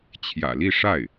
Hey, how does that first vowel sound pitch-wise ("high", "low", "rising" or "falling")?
low